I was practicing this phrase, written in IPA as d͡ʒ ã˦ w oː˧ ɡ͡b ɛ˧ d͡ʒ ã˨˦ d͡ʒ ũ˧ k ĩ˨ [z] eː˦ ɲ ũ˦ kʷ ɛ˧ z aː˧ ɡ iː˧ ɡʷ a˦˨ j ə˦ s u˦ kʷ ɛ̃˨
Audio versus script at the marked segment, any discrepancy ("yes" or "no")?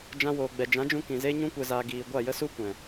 no